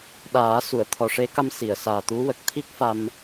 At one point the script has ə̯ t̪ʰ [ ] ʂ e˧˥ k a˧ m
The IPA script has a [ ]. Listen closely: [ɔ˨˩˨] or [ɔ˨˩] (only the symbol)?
ɔ˨˩